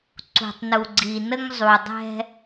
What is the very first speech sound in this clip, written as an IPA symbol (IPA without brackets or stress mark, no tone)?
ǀ